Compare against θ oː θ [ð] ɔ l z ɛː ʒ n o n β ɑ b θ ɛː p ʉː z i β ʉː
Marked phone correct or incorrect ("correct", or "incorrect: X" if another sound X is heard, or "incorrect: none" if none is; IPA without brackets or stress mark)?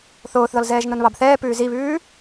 correct